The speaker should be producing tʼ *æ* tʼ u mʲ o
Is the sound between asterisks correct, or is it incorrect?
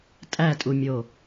correct